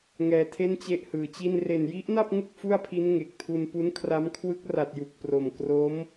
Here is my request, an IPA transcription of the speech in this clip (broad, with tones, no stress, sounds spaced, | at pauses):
ŋ ɛː˧ tʰ e˥˩ n t͡ɕ e˥˩ ʔ h ɯː˨˩ t͡ɕ i˥˩ n r e˨˩ n j i˦˥ ʔ n a˥˩ p̚ ŋ u˥˩ k̚ f u˥˩ a̯ pʰ i˦˥ n ŋ e˨˩ k̚ tʰ u˧ n p u˦˥ n kʰ r a˦˥ m kʰ w ɯ˦˥ k̚ r a˨˩ t̚ j u˨˩ k̚ p r o˨˩ m k r o˦˥ m